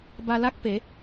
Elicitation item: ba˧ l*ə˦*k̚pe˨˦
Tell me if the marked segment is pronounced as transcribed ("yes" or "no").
no